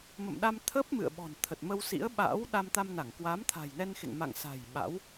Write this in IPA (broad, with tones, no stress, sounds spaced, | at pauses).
m ə̰˧˨ m ɗ a˧ m t̪ʰ ə˦˥ p̚ m ɨ̰˧˨ ə̯ ɓ ɔ̤˨˩ n t̪ʰ ə˨˩ t̚ m ə˧ w s ḭ˧˥ ə̯ ɓ a̰ː˧˥ w ɗ a˧ m t̪ a˧ m n a˧˩ ŋ k w aː˨˦ m t̪ʰ a̤˨˩ j n ɛ˧ n x ḛ˧˨ ŋ m a̰˧˨ ŋ s a̤˨˩ j ɓ a̰˧˥ w